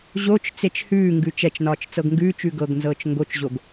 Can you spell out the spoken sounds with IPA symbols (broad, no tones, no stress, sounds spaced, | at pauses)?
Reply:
ʑ o t͡ʃ t͡s e t͡ʃ h ʉː ŋ ɡ ʉ t͡ʃ ɛ t͡ʃ n ɒː t͡ʃ t͡s ɤ ɡ ŋ ɡ ʉː t͡ʃ ʉ ɡ ɤ ɡ n z ɤː t͡ʃ ŋ ɡ o t͡ʃ ʑ o ɡ